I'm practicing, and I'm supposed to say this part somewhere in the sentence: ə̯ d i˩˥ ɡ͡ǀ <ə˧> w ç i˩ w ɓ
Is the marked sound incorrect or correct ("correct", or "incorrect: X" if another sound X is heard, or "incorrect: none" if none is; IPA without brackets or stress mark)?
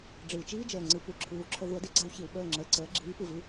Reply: incorrect: a˧